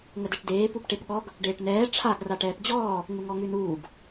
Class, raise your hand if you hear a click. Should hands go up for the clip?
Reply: no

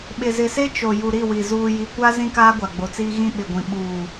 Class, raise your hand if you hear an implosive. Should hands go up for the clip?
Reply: yes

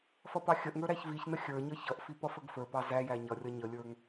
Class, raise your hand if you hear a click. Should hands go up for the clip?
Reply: no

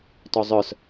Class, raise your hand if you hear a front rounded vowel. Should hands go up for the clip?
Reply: yes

